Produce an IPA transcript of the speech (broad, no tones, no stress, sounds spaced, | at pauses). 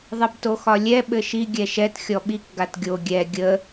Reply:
ðˤ ɘ b t o x ɒ lʲ ɛ ɓ ɘ ʃ i ɡʲ ɛ ʃ ɛ t xʲ ɔ ɓ i k ɡ a t ɡʲ o ɡʲ ɛ ɡʲ ə